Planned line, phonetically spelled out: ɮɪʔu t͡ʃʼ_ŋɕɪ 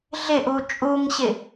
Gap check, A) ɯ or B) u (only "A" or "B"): B